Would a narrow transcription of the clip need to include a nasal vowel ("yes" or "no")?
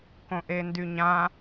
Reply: yes